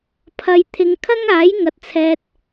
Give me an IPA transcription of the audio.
pʰɐ˧j t̪ʰɪ˨˧ŋkʰɐ˥ŋaː˨˥j ŋɐ˨t̚t͡sʰɛː˨t̚

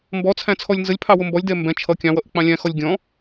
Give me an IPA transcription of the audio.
mbɔt͡sʰæ̃t͡sʰɔlʲ nzəlʲpʰɑwʊ mbɔlʲdɛ mbɛ̃ t͡ʃʰʌ kʲɑ̃wʌʔɪk͡pɑ̃ lʲæ̃xɔlʲ ɡʲɔ̃

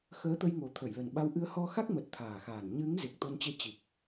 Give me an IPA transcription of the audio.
xəː˨˦t̪ə˧jŋo˨˩ t̪ʰə˧˩jlə˨˩nɓa˧w ʔɨ˧ə̯hɔ˧xa˦˥k̚mə˨˩t̚ t̪ʰaː˨˩xaː˨˩n ɲɨ˨˦ŋ ze˨˩k̚t̪o˧nt͡ɕe˧ t͡ɕi˨˩k̚

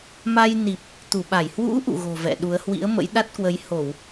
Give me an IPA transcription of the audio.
ma˧jni˨˩p̚ | t̪u˧˩ɓa˧˩j hwṵ˧˥ ʔṵ˧˨ɣo̤˨˩ vɛ̰˧˨ɗu˨˦ə̯ hwḭ˧˥ə̯mə̰˧˥jɗa˦˥t̚kwə˨˦j ho˧˩˨w

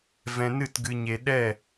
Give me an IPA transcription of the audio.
vɛ̃˧nɨ˦˨tɡɨ˧ ɲe˧ ɗɛ˦˨

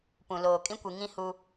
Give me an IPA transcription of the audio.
pũ˨loː˨ kʼĩ˦kʷi˨ŋĩ˦ hu˦

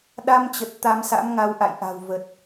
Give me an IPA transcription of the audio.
ɗa˧mt͡ɕə˨˩t̚ t̪a˧msa̰˧˥m ŋa˨˦w ʔa̰˧˨jʔa̤˨˩wvə˨˩t̚

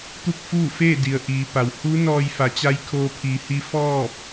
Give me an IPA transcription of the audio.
t̪u˥˨k̚fuː˥˨feː˥˨di˩ə̯ ʔiː˩˧ pa˩w hu˧˥ nɔː˧jfa˩˧ t͡ɕa˧˥jkʰoː˧pʰiː˩˧hi˧˥ fɔː˥˨p̚

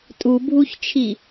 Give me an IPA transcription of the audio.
tʼubʱuçt͡ʃʰi

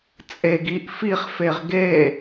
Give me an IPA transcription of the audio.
t͡sʼeɡ iʔ fiχfeʁ ɡe

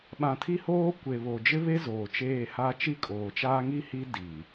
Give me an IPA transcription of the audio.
ɓã˨tʰi˦hoː˦ kʷe˨βo˨ d͡ʒɪ˦βe˦ zoː˨t͡ʃeː˦˨ha˦ t͡ʃi˦kʼoː˨t͡ʃaː˦ ŋi˦hi˦ di˨

